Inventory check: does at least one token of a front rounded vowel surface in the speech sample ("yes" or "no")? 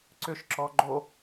yes